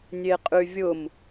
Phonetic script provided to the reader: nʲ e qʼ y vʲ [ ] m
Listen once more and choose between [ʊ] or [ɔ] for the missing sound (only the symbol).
ʊ